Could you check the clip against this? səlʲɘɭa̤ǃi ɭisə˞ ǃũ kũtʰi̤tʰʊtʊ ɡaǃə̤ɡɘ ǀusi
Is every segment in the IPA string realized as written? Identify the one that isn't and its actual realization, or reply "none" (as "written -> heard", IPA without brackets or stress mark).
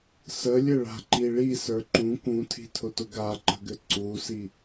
none